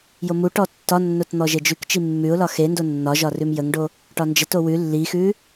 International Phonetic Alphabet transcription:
jomuʈɔ tːɒnːot n̪ɔʒed͡ʒʉkt͡ʃi mːʉʊ̯lɒ xendo nːɒʒɒ rʉmjəŋɖo | ʈɒnd͡ʒəto wʉ lːixʉ

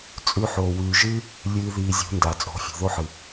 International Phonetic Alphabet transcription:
t͡sʼʉ˧ ħoː˨wʉː˨ʒɨː˦ | lʲɨː˧ ðiː˧zʲṳ˨˦nda˨ t͡sʼo̤˨˦fʲṳ˨ðo˦ħɨ˨

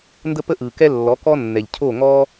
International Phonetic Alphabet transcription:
ndə˥pə˥ ʔɯ˩kɛ˥ lːɔ˩˥kɔ˥nːɛ˩ʎ cʰo˥˩ŋɔ˥

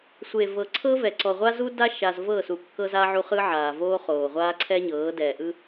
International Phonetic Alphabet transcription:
sʷe˨vɤ˨ǀʰɤ˦vɛ˨ ǀɔ˨ʁʷa˦zu˦ da˦ʃa˨z vɤ˦˨ su˨kːɤ˦za˦ ʕu˦χɯ˦ʕaː˨ voː˦χoː˨ʁʷaː˦ ǀʰɛ˦ɲɤː˨˦dɛː˨ʔɯ˦

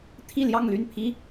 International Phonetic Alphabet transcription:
t̪ʰi˥˧ljɑ˥˧ŋly˥˩npʰi˥

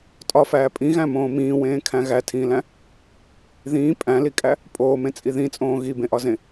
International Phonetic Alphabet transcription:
tʼɒfæː pʼĩɣæ̃mõː mĩːwẽːkʰæ̃ ɣætʰĩːlæ̃ | ðĩː pʼæ̃likʼæ | pʼoːmẽt͡sʼi ðĩt͡sʼõː ɣibẽʔɒzẽ

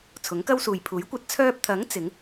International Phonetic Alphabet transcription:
t͡sʰʊ˨˥ŋkɐ˥wsuː˨j pʰuː˨˥jkʷɐ˧t̚ t͡sʰœː˧p̚t̪ʰɐ˨˥ŋ t͡sɪ˨˥ŋ

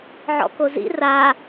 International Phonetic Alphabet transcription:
ʕɔ̰kozḭ ra

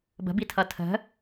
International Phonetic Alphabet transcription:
bə̤bitʰʌ tʰə̤

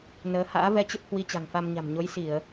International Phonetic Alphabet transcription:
nəː˨˦ ha̰ː˧˥vɛ˧t͡ɕə˦˥p̚ hwi˧t͡ɕa̤˨˩ŋfa˧mɲa̤˨˩m ɲo˨˦jsi˧˩˨ə̯

